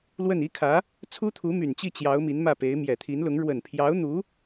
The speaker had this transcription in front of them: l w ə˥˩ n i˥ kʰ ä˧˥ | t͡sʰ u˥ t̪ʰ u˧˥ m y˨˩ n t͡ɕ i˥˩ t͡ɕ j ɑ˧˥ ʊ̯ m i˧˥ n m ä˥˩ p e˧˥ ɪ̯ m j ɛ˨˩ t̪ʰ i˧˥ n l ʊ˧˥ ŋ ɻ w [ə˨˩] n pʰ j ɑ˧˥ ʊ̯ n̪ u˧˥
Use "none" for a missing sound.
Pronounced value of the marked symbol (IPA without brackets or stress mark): ə˨˩